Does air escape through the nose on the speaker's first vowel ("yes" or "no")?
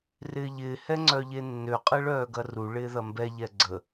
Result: no